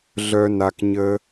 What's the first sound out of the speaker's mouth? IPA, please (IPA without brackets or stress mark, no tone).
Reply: ɮ